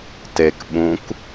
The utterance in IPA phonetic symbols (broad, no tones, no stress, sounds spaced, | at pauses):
t e k ɓ ũ k